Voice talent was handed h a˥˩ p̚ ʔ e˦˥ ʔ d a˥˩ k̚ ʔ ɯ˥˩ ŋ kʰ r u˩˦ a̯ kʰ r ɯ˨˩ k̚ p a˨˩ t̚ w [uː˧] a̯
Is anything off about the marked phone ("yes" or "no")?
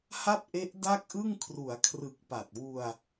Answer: yes